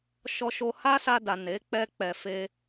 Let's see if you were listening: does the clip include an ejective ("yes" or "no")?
no